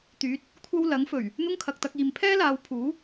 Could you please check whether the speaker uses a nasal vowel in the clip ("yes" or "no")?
no